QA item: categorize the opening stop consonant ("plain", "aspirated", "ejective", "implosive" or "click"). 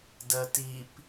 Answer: plain